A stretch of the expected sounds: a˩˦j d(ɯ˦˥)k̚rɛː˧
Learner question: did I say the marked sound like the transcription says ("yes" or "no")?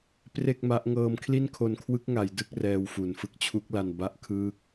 yes